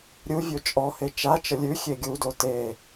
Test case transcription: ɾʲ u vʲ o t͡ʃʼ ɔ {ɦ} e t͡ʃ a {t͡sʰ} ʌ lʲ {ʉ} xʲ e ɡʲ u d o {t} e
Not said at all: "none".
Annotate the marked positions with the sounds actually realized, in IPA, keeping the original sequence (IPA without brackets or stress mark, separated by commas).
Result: h, t͡ʃ, ʉ, t